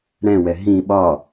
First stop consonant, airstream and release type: implosive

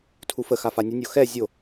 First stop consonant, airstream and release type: aspirated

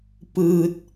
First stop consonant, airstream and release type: plain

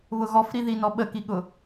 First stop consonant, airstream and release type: implosive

